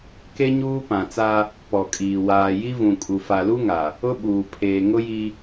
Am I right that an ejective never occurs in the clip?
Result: no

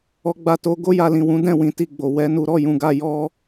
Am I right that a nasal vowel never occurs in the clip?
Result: no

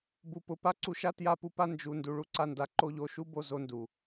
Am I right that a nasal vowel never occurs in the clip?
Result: yes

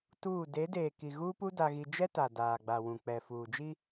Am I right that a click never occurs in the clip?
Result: yes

